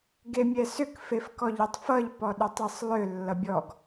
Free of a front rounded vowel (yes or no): no